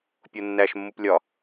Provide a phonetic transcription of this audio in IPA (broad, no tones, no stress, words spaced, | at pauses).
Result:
pʲonːæʃ mːuplʲɒ